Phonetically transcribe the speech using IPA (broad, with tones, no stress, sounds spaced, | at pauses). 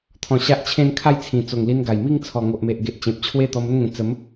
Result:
t̪ʰ ɔ̃˧ ɕ a˦ ʔ t͡ɕʰ ẽ˥˧ n kʰ a˥˧ j t͡sʰ ĩ˨˩ t͡s o˨˩ ŋ l i˧ n ɡ a˨˩ j m i˥˧ ŋ t͡sʰ ɔ˨˩ ŋ o˨ ʔ m e˨ ʔ ɡ e˨ ʔ t͡ɕ ẽ˨ p̚ t͡ɕʰ w e˥˧ t̪ ɔ˧ m ə˥˧ n ŋ ẽ˨˩ t͡s ə˨˦ m